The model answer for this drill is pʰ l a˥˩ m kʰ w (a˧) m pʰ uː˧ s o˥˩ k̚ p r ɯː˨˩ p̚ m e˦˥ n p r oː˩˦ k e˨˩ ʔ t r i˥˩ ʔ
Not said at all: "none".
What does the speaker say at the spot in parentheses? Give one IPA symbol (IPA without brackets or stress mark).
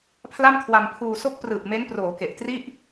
a˧